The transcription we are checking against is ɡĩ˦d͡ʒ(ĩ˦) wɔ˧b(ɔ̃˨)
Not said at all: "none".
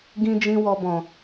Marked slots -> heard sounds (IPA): ĩ˦, ɔ̃˨

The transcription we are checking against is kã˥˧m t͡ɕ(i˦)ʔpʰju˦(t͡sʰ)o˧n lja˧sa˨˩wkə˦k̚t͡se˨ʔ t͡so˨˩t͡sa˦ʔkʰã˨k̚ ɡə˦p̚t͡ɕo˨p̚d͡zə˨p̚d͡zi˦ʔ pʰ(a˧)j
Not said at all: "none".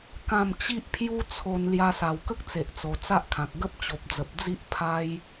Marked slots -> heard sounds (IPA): i˦, t͡sʰ, a˦

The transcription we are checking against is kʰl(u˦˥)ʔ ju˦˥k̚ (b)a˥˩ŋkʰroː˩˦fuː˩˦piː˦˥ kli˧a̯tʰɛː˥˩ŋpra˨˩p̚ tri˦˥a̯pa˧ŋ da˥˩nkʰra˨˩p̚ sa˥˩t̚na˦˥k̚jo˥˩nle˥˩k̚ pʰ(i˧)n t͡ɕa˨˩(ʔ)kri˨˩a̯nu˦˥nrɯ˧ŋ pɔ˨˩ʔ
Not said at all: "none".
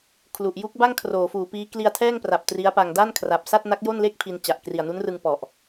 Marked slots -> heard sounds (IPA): u˨˩, b, i˧, ʔ

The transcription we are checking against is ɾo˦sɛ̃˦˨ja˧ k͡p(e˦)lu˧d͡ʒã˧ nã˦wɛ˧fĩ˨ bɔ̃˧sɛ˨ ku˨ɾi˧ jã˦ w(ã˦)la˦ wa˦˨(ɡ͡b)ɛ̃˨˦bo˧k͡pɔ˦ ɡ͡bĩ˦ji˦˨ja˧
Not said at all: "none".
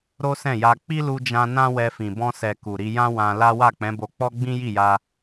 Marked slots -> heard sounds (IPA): i˦, ã˧, k͡p

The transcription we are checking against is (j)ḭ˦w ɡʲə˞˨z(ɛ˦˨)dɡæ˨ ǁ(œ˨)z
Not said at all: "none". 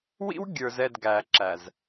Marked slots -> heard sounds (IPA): w, ɛ˦˨, æ˨

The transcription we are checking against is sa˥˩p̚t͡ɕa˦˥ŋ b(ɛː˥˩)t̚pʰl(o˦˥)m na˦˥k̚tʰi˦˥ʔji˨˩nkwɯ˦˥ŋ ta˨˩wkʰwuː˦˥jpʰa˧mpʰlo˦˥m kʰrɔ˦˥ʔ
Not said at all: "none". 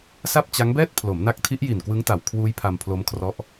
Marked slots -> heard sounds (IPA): ɛː˥˩, o˩˦

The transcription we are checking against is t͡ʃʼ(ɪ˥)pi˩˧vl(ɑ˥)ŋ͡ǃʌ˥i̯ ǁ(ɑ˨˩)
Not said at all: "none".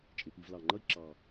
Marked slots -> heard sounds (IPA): ɪ˩˧, ɑ˨˩, ɑ˨˩

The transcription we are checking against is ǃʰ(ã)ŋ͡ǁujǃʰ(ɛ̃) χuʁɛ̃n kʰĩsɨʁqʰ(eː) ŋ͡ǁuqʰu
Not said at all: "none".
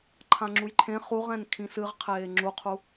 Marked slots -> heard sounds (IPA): ã, ẽ, eː

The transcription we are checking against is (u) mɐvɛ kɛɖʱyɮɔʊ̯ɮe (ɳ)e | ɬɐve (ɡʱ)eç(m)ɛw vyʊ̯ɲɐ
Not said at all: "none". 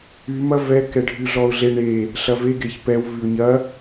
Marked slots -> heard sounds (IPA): y, ɳ, ɡ, p

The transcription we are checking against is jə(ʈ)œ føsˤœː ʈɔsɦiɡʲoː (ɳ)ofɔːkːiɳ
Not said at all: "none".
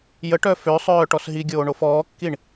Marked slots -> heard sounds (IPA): ʈ, ɳ

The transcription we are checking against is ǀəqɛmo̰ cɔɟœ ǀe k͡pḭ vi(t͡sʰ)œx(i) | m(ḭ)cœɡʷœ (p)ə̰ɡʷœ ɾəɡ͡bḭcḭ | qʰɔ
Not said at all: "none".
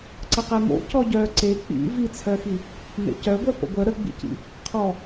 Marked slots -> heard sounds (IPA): t͡sʰ, i, ḛ, p

